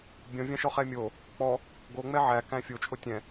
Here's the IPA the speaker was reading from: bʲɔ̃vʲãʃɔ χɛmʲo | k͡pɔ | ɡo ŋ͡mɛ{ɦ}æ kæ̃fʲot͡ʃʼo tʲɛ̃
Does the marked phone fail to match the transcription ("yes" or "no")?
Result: yes